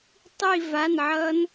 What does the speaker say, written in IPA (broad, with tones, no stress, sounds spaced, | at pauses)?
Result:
tˤ i˥˧ v a˧˥˧ n ʕ ʌ˦˥ n